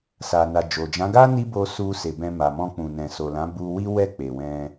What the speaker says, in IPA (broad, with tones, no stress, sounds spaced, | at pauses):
s a˨ n a˨ d͡ʒ o˨ d͡ʒ ã˨˦ ɡ a˦ n i˦ b o˧ s u˧ s e˨ b ɛ̃˧ m a˨ m ɔ̃˧ k͡p ũ˨ n ɛ̃˨ s o˨ l ã˨˦ b u˧ w i˦ w ɛ˦˨ k͡p e˨ w ɛ̃˧